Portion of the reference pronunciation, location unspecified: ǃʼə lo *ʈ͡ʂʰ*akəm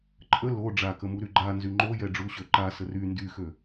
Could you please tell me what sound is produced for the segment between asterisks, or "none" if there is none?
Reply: ɖ͡ʐ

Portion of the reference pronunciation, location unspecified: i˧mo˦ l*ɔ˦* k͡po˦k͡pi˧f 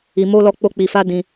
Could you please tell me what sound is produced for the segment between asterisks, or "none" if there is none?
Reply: ɔ˦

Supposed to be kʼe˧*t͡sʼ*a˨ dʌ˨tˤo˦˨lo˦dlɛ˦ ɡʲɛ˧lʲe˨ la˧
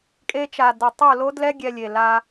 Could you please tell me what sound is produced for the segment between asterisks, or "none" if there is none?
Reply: t͡ʃ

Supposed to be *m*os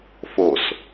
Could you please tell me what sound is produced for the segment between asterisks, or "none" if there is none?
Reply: f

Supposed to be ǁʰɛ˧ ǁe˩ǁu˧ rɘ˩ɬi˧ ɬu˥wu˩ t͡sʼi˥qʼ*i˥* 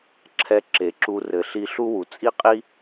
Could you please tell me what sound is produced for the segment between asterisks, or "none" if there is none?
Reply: i˥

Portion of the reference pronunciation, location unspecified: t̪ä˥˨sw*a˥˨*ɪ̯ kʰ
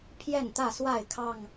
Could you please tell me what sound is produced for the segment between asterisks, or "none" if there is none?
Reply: a˥˨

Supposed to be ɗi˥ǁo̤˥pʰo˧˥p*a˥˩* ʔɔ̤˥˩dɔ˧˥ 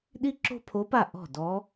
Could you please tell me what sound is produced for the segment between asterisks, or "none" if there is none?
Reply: a˥˩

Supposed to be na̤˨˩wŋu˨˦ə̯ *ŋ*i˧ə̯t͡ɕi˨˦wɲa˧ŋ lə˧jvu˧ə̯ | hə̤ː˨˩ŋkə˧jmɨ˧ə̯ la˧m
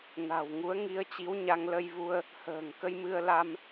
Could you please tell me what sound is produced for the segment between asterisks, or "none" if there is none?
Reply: ŋ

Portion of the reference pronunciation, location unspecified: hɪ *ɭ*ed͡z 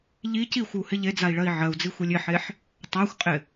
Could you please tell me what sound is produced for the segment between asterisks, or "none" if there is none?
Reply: ʎ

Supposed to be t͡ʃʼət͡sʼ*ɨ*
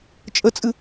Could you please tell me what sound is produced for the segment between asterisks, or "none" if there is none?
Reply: ɨ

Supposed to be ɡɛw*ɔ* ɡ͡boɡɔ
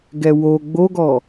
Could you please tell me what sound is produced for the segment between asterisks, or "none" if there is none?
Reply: o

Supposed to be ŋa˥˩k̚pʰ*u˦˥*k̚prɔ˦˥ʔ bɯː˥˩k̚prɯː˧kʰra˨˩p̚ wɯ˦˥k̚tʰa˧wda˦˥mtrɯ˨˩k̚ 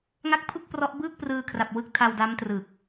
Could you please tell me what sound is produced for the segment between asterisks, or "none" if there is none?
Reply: u˥˩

